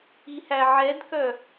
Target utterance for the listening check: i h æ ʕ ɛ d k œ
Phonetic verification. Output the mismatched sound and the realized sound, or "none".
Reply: none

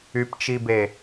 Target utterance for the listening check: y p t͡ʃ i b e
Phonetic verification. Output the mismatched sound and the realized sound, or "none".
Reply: none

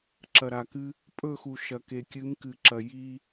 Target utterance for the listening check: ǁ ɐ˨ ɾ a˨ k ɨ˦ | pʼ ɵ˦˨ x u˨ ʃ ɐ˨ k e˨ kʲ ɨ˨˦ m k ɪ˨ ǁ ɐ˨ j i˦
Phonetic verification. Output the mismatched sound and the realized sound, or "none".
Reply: ɪ˨ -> ɨ˨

